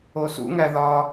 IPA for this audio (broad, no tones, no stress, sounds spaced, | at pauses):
o s ṵ ŋ æ ð ɒ